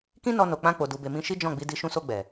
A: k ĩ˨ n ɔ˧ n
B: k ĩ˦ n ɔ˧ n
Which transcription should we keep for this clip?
B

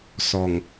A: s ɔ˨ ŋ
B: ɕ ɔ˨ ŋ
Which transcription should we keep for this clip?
A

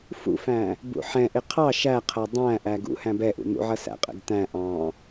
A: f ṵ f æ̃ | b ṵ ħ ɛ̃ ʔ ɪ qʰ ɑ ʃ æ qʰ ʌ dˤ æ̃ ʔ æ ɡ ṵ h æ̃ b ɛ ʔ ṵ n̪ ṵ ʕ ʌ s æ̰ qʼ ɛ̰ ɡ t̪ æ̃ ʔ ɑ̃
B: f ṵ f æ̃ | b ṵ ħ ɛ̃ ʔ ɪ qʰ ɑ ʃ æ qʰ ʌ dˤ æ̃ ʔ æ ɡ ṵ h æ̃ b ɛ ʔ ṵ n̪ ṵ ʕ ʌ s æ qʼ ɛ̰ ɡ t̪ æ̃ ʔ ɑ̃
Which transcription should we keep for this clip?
A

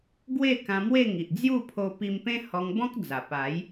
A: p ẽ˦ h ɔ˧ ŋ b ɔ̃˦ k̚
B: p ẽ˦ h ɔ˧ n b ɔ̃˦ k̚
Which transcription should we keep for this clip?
A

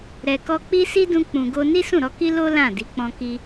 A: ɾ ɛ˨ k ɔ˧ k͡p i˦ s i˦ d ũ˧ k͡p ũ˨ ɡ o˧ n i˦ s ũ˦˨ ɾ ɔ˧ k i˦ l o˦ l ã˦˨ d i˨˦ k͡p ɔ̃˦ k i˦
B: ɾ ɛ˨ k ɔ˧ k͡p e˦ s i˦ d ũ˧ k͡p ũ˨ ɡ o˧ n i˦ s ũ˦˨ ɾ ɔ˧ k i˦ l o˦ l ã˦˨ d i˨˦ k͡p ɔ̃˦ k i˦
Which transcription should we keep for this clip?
A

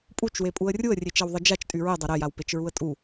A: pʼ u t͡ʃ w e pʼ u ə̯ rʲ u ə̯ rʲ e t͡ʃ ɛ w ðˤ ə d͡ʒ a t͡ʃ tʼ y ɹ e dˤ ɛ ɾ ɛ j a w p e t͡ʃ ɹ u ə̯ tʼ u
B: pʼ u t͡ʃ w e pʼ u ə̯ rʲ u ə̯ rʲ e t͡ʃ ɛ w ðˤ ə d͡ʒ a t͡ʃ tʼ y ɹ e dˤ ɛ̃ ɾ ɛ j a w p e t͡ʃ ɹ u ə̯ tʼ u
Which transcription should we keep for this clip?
A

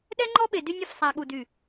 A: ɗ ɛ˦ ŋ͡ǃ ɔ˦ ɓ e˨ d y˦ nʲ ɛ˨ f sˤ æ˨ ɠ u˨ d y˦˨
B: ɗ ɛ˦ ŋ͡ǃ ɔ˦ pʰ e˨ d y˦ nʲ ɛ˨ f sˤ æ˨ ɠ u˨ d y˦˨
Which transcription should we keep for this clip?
A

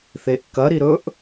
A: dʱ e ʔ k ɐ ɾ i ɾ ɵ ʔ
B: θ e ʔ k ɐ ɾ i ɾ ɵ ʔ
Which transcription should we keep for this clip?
B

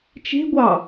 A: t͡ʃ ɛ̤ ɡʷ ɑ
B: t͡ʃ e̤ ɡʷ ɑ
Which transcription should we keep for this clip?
B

